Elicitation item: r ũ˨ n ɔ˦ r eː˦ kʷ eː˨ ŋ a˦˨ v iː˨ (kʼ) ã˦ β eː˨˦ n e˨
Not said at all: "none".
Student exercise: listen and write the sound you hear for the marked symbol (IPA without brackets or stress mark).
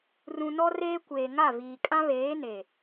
kʼ